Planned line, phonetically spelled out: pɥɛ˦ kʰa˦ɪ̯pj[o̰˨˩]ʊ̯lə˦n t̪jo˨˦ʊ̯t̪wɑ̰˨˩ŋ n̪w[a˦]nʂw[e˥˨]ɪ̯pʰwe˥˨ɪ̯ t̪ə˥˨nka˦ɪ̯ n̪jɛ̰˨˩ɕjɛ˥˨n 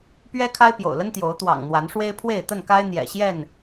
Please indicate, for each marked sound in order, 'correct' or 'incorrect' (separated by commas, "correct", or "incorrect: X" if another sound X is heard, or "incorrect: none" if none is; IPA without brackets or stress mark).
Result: correct, incorrect: a˨˦, incorrect: e˦